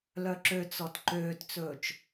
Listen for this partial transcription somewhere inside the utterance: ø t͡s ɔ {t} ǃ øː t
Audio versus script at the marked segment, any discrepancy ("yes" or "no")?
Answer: no